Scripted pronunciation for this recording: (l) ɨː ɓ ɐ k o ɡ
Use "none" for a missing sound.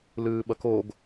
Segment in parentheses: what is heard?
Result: l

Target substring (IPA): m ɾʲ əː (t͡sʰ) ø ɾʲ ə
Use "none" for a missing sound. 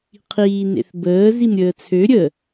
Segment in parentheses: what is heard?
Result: t͡sʰ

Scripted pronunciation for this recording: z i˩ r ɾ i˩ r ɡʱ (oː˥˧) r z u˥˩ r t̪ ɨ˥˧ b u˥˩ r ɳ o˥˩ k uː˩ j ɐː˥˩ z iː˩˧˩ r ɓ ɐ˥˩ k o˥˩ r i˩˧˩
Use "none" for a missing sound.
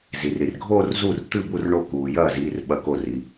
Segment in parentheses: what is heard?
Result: oː˥˧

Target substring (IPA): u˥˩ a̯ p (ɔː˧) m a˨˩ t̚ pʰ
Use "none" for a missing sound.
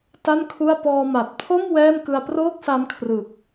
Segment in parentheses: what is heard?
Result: ɔː˧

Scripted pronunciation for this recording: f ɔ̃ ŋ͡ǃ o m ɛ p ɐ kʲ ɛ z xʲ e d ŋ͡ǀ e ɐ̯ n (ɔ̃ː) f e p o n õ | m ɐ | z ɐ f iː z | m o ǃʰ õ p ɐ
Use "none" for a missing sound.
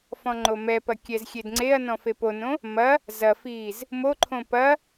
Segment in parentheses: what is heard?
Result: ɔ̃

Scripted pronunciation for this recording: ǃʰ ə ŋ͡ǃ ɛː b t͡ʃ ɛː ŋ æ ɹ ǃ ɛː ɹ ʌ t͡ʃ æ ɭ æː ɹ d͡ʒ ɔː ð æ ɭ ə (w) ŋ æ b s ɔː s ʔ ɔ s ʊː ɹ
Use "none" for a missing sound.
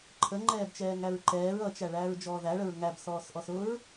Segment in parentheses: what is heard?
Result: ɹ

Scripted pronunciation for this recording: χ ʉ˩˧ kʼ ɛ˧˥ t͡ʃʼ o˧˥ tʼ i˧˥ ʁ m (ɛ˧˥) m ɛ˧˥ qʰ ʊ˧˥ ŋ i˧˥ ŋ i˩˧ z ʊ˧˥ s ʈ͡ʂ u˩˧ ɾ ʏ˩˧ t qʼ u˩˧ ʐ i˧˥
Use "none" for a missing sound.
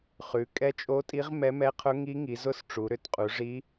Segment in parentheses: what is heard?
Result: ɛ˧˥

